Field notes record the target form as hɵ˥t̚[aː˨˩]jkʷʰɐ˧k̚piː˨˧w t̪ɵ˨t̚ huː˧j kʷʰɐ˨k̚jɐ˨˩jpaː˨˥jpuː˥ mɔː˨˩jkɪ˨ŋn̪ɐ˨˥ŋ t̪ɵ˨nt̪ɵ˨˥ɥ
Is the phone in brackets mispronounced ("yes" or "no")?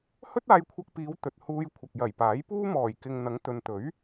yes